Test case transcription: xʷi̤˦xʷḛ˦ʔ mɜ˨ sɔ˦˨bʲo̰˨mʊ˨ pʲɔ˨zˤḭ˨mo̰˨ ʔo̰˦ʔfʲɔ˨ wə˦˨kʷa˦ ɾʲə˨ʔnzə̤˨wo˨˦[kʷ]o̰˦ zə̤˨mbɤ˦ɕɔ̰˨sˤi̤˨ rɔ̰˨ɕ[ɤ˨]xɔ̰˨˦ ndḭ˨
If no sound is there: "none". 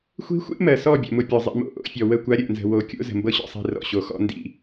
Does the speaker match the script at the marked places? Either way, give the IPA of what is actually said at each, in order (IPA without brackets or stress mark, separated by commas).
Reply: kʲ, o˨